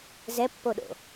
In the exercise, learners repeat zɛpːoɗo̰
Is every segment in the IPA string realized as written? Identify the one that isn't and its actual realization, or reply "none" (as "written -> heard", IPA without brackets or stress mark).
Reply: none